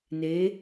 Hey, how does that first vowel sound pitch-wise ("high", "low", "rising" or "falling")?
rising